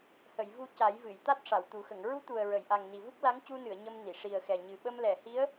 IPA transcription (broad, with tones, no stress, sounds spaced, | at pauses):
h ə˨˩˨ j v u˧ c a˨˩˦ j v ɨ˨˩˨ j t̪ a˦˥ t̚ ʂ a˨˩˨ w t̪ u˨˩˦ x ə˨˩˨ ŋ ɹ u˧˥ t̪ u˨˩ ə̯ ɹ ə˨˩˨ j ʔ a˨˩ ŋ n i˨˩ v u˦˥ k̚ l a˧˥ ŋ c u˧ n ɨ˨˩˨ ə̯ ɲ ə˧ m n i˨˩˨ ʂ i˨˩ ə̯ x ɛ˨˩ ɲ ɨ˨˩ ɓ ə˧ m l ɛ˨˩˨ h i˧˥ ə̯